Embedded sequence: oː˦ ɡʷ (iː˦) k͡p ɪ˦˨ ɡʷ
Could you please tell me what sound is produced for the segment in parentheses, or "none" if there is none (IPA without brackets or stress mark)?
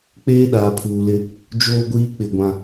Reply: iː˦